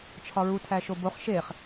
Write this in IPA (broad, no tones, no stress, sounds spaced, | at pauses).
t͡ʃʰ ɒ ɹ u tʰ æ ʃ o b o χ ʃ e χ